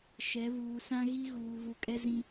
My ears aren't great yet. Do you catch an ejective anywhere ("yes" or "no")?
yes